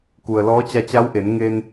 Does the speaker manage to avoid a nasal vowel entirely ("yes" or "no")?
yes